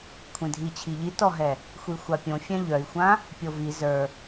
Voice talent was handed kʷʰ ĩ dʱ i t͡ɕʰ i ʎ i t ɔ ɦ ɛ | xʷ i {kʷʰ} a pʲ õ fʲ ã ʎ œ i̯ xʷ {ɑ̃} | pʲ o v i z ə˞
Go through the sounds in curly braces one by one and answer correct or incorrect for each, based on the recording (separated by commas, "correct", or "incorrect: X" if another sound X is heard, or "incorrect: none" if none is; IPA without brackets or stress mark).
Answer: incorrect: xʷ, incorrect: ã